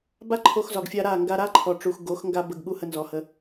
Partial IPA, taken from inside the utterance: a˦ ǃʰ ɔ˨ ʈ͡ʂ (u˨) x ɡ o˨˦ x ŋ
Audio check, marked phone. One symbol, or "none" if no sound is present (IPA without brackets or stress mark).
u˨